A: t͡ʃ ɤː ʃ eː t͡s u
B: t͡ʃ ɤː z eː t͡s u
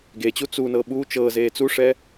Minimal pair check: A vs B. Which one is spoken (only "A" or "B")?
B